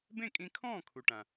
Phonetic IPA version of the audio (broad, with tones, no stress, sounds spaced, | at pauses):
b ẽ˥˩ kʼ ĩ˧ kʰ ɔ̃ː˥˩ kʰ u˩ ʈ ã˩